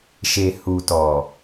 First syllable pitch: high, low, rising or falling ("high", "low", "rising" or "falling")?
low